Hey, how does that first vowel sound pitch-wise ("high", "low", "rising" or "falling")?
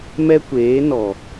high